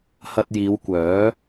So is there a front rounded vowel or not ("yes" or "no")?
yes